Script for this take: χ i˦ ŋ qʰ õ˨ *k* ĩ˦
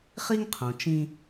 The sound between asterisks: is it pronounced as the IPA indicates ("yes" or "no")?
no